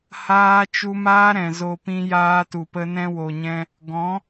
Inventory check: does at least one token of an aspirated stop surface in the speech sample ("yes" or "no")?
no